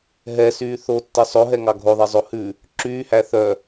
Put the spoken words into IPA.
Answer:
ɦ ɛ s yː θ o tː ɛ sˤ o ɦ ɛ ŋ ɑ ɡʱ o ðˤ ɛ zˤ o h ʉ | ǁ yː h æ θ œ

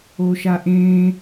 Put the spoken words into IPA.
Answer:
o ʃ a ʔ ẽ

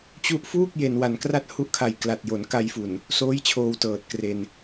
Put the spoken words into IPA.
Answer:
t͡ɕ u˦˥ ʔ f uː˥˩ k̚ j e˩˦ n w a˩˦ n k r a˥˩ t̚ h u˦˥ ʔ kʰ a˨˩ j k l a˨˩ t̚ j o˩˦ n k a˧ j f u˨˩ n | s oː˦˥ j t͡ɕʰ oː˧ w t ɤː˨˩ t̚ k r e˧ n

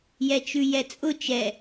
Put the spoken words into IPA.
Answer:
j ɛ t͡ʃ ʉ j ɛ t͡sʼ ʊ t͡ʃ ɛ

